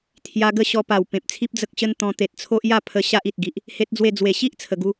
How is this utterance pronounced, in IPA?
t̪ʰ j a˧ ɡ ə˥˧ ɕ ɔ˧ p a˨˩ w p ẽ˨ p̚ t͡sʰ i˦ p̚ d͡z ə˦ k̚ ɕ ə˦ n t̪ ɔ̃˧ t̪ e˨ t̚ t͡sʰ o˦ ʔ j a˥˧ pʰ ə˧ ɕ a˦ ʔ i˨ t̚ ɡ i˨ ʔ | h e˦ t̚ d͡z w e˥˧ d͡z w e˨˩ ɕ i˦ ʔ t͡sʰ ə˨˩ ɡ u˦

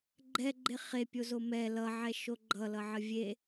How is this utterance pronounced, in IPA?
ɡ͡ǃ ɛ ɡ͡ǃ e χ e pʲ o z o m ɛ l ʌ ʕ ɛ ʃ o ɡ͡ǃ ʌ l ʌ ʕ ə vʲ e

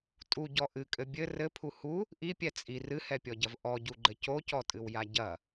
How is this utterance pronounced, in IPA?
tʼ u ɟ ɔ ʔ ɨ kʼ ɘ bʲ ɘ r ɘ pʰ u h u | ʔ i pʲ ɛ t͡sʼ i r ɨ h ɛ pʲ ɔ ɟ ɐ v ʔ ɔ ɟ u ɡ͡ǃ ɘ c o c ɔ tʼ ɨ w j a ɟ ɐ

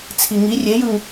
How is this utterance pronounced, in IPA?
t͡sʰ i ŋ i rʲ e j ɯ ŋ

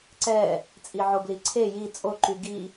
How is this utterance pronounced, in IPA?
ǀ ɛ | t͡sʼ i ʕ o b l i ǀʰ e j i t͡sʼ o ǃ y ɡ i

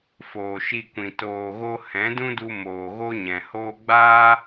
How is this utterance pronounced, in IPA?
f oː˨ ʃ i˧ kʷ ĩ˨ t oː˨ ɣ o˧ h ɛ̃˨˦ d ũ˦ d u˧ m oː˨ ɣ o˦ ɲ ɛ̃˨ h oː˧ ɡ͡b aː˦

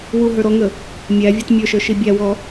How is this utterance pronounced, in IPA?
w u ɦ ə˞ ɾ ɔ ŋ ə | mʲ æ vʲ ɔ t mʲ ə˞ ʃ ə˞ ʃ i bʲ æ w ɔ

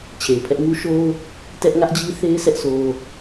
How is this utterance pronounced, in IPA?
t͡ɕʰ e˨ ɪ̯ pʰ ɛ˦ ʔ ŋ u˦ ʃ o˦ ʊ̯ | t ɛ˦ ʔ ŋ ä˦ ʔ d͡ʑ i˦ θ e˦ ɪ̯ sʰ ɛ˦ ʔ sʰ o˦

